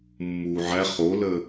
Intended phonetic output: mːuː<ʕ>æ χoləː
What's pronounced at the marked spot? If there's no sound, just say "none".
ʕ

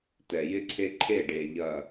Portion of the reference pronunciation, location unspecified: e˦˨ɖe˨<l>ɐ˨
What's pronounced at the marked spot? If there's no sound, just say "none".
ʎ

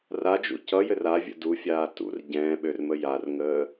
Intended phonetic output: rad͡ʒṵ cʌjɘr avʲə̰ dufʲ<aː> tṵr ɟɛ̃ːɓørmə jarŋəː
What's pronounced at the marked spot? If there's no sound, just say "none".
aː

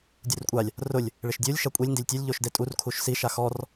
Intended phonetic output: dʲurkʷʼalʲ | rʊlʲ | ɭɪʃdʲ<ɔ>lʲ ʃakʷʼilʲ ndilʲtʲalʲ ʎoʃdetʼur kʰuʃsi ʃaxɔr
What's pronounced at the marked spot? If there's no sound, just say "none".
o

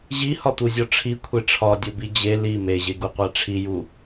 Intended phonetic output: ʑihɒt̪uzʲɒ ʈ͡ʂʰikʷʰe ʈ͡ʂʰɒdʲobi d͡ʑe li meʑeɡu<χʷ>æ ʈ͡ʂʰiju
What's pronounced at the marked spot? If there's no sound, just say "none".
qʷ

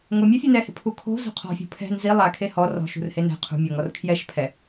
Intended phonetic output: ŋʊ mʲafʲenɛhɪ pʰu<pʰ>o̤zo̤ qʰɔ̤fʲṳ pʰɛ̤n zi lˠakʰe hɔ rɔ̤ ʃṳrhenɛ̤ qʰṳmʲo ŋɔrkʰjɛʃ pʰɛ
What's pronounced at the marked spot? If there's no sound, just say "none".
kʰ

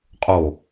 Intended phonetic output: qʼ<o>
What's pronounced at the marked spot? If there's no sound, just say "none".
o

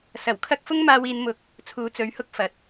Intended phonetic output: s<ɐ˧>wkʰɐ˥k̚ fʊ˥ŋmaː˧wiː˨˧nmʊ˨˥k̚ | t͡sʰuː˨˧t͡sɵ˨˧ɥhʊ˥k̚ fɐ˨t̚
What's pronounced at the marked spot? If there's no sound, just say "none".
ɐ˨˩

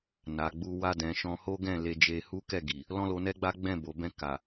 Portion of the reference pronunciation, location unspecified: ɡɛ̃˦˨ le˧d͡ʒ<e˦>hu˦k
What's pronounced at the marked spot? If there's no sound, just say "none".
e˧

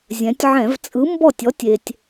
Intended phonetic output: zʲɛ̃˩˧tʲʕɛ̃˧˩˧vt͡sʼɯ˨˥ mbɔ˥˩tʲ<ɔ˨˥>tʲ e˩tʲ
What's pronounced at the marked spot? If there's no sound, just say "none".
ɔ˨˥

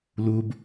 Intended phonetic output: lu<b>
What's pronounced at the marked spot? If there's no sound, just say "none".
b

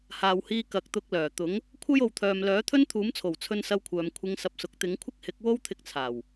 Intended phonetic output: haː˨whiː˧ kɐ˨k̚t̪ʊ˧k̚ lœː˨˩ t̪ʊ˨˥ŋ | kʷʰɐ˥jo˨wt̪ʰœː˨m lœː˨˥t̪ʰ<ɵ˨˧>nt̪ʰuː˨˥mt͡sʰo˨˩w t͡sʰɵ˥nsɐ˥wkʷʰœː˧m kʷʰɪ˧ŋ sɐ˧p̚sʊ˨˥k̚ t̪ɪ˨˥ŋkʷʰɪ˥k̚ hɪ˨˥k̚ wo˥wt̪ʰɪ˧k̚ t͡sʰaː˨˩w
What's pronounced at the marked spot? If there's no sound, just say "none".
ɵ˥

